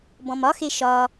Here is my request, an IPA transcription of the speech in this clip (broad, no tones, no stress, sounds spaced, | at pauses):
b ɔ̃ m ɒ x e ʃ ɒ